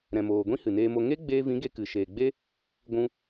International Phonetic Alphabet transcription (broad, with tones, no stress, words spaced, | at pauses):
ɾɛ̃˧moː˧ ɡʷĩ˦hɨ˨neː˧mo˧ ŋe˦ɡ͡beː˧vĩ˨˦ ɡe˧ kɨ˨ʃeː˨ɡ͡be˦ | ɡʷũ˧